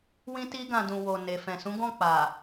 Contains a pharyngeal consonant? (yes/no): no